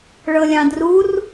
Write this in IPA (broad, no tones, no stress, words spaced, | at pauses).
ɭɤlʲɑ̃drur